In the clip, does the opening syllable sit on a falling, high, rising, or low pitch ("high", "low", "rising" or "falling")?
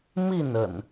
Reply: falling